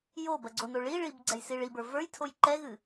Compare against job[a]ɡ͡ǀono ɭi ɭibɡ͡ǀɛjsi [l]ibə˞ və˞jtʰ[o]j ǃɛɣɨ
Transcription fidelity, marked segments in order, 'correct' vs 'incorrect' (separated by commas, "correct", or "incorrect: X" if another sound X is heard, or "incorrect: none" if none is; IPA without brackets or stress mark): incorrect: ɐ, incorrect: ɭ, correct